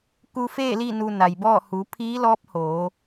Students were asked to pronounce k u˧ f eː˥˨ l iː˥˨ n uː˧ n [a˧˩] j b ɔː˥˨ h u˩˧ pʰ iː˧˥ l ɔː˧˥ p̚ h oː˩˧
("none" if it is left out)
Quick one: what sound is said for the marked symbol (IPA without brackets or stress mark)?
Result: a˩